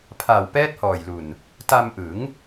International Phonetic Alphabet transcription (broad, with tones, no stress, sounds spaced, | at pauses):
pʰ a˨˩ w p ɛː˦˥ t̚ h ɔː˨˩ j l u˨˩ n | t a˧ m ʔ ɯ˩˦ ŋ